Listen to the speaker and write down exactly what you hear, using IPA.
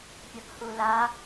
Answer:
pʲ ɐ p h u l a

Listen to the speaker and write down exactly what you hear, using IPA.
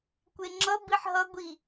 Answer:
kʷ e ŋ͡ǁ ʌ b i ħ ɦ ʌ ɡʷ i

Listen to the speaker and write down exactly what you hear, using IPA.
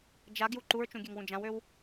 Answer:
d͡ʒ a ɡ j u ǃ u ɹ t͡ʃ ũ ɡʲ ø ŋ w ũ d͡ʒ ã w ø w

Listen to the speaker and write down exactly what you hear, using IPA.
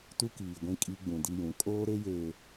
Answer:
t u˦ k iː˨ ɡʷ ĩ˦ kʼ i˦ ɡ͡b ũ˨ d i˦ j ũ˨˦ kʼ oː˦ ɾ e˦ j eː˨

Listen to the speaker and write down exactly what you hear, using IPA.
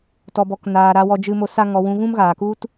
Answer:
t ɔ˧ b ɔ˧ k n aː˧ ɾ a˧ w ɔ˦ d͡ʒ ɨ˦ m o˦ s a˦ ŋ ɔ˧ w ũ˧ ɣ ũ˦ m ɣ aː˨ k u˦ t

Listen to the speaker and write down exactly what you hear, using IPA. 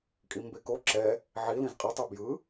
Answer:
kʼ i m b e k o ǁ ɛ | ʕ i l ĩ z qʼ i tˤ ɯ b j ɯ

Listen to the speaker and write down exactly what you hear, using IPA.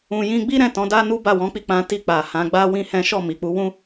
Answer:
ũ˧ j ĩ˦ ɡ͡b i˦ ɾ ɛ̃˦˨ t ɔ̃˨˦ d a˦ n u˦ b a˦˨ w ɔ̃˨˦ k͡p i˦˨ k͡p ã˧ t i˧ k͡p a˨ h ã˨˦ ɡ͡b a˦ w ĩ˦ h ɛ̃˦ ʃ ɔ˦˨ m i˨ k͡p u˨˦ w ũ˦

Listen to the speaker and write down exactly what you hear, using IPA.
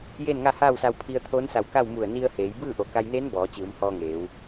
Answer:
j eː˥˨ n ŋ a˥˨ h aː˥˨ w s a˧ w pʰ i˧ ə̯ t̪ʰ oː˧˥ n s a˧˩ w k a˥˨ w m u˧˩ ə̯ n i˧ ə̯ h eː˩˧ j b ɯː˥˨ ʔ o˩˧ k a˧ j n eː˧˥ n b ɔː˩˧ t͡ɕ ɯː˩˧ m h ɔː˧ ŋ eː˩˧ w

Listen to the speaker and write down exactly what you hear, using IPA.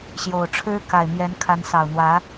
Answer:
ɕ j o˨˩ ʊ̯ ʈ͡ʂʰ ɻ̩˥ k a˨˩ ɪ̯ m j ɛ˧˥ n kʰ a˧˥ n s ɑ˨˩ ʊ̯ n̪ w ä˧˥

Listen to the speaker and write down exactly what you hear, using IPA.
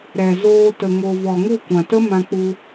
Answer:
ɾ ɛ˨ z oː˧ t ə˨ ŋ o˨ v ɔ˨ ŋ u˦˨ kʷ ã˨ t ə˦ m ã˧ k͡p u˧

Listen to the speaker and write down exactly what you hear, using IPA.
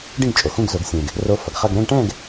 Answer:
ɖ ĩ˥˧ ɡ t͡ʃʼ o˨ x ũ˥˧ ɡ z o˨˩˦ ɡ sʲ ẽ˨ ɡ | r o˧˥ f ʌ˨ ɡ χ ʌ˥˧ ɡ ɾ ɛ̃˥˧ ɡ ʈ ɛ̃˥˧ ɡ

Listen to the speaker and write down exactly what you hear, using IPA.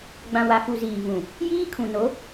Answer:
ɡ͡b ã˨ w a˨ f u˨ z iː˨ v ũ˨ | j iː˦ kʰ ũ˨ n o˨˦

